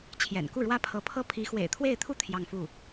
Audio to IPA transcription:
t͡ɕʰ j ɛ̰˨˩ n k u˥˩ ɻ w ä˥ pʰ ɤ˧˥ pʰ ɤ˥ pʰ i˧˥ x w ḛ˨˩ ɪ̯ t̪ʰ w e˥˧ ɪ̯ t̪ʰ u˥˧ t̪ʰ j ɑ˥˧ ŋ f u˥˩

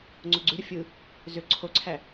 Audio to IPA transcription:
ŋ͡ǀ o ɡ͡ǀ ʉ ɾ ə fʲ ɯ | z ø ǀʰ o ǀʰ æ

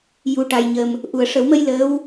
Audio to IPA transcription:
j u˨˩ ʈ a˨˩ j ɲ ə˨˩ m | ʔ u˨˩˨ ə̯ ʂ ə˨˩˦ w m ə˧ j l əː˧˥ w

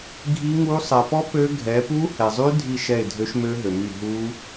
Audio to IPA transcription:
ɡʱ i˦˥ ŋ u˦˥ sˤ ɛ˨ p ɔ˦˥ p ø˦˥ ɡʱ ɛ˨˦ p u˦˥ h ɛ˨ zˤ y˦˥ dʱ i˦˨ ʃ ɛ˦˨ ɪ̯ dʱ ø˦˥ ʃ m ø˦˥ ɦ ø˨ m y˦˨ ɦ u˦˥

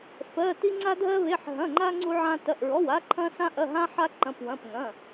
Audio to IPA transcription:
f ɜ˩˧˩ t i˧ ŋ͡ǀ a˧ dʱ ɜ˧ β e˩˧˩ ħ ɦ ɐ̃˩˧˩ ŋ͡ǃ a˧ ŋ͡ǀ u˧ ʕ ã˧ t ɐ˩˧˩ ʔ ɹ ɔ˩˧˩ w a˧ ǃʰ ɐ̃˧ s ã˧ ʔ ɐ˩˧˩ ɦ ã˧ ħ a˧ ǃ ɐ̃˩˧˩ p w ɐ̃˩˧˩ p ŋ ɐ̃˩˧˩

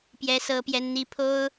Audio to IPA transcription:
p j ɛ˥ s ɤ˥ p j ɛ˥ n n̪ i˥ pʰ o˥ ʊ̯

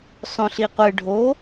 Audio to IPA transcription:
sˤ õ ɬ i qʷ ɨ ɖʱ o

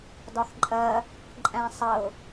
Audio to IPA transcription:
d ɒ x ǃʼ ɜ | ǃʼ æ̃ sˤ ə ʊ̯

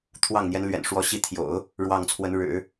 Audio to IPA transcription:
t̪ʰ w ɑ˥˩ ŋ n̪ j ɛ˧˥ n l ɥ ɛ̰˨˩ n ʂ w ɔ˧˥ ɕ i˧˥ t̪ʰ j o̰˨˩˦ ʊ̯ | ɻ w ɑ˥˩ ŋ t͡sʰ w ə˧˥ n ɻ ɻ̩˨˩˦

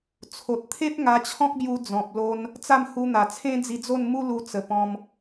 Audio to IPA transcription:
t͡sʰ o˨ t̚ t̪ʰ e˦ p̚ ŋ a˧ t͡ɕʰ ɔ̃˦ k̚ b j u˧ d͡z ɔ̃˨ p̚ l o˧ n | t͡s a˥˧ m h u˧ n̪ a˨˩ t͡sʰ ẽ˦ d͡z i˧ d͡z o˥˧ n m u˦ l u˧ t͡s ə˨˩ p ɔ̃˧ m

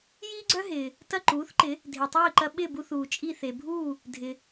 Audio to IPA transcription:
j iː˥ ɡ͡ǀ œ˥ ɦ ɪː˩ | t ɐ˥˩ ǃ uː˩˥ θ ǃ ɪ˩˥ | dʱ e˩ tˤ iː˥˩ ǃ ɐ˧ ɓ ɪ˥˩ b u˧ θ uː˩ t͡ʃʼ i˥˩ θ e˩ bʱ uː˥˩ | dʱ ɪ˩

